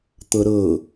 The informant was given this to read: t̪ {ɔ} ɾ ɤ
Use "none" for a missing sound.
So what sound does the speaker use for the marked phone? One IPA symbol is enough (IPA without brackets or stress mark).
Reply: ɤ